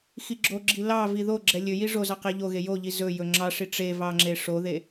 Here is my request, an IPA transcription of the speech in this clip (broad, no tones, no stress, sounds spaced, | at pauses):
x i ɡ͡ǁ o ɡ͡ǁ i l ɑ v i ð o ɡ͡ǁ ɛ lʲ ɵ j i ʐ o z ɑ q e ʎ o ɣ e j o ʎ i z ɵ j ɵ ŋ͡ǁ ɑ ʂ i ʈ͡ʂ e v ɑ ŋ͡ǁ e ʂ o ð e